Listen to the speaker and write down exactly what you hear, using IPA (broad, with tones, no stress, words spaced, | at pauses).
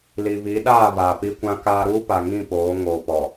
li˨ βi˨˦ɗaː˦˨ βaː˨ pi˦kʷã˦kaː˦ ɾuː˦pa˨ŋĩ˦˨ poː˨˦ŋoː˨pɔ˨